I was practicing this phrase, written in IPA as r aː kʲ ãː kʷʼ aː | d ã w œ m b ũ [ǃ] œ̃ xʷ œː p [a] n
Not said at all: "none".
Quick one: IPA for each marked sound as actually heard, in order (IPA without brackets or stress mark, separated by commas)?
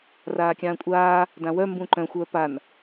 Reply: ǃ, a